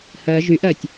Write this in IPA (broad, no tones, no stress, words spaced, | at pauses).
hɜ ʒyʔɜtʲ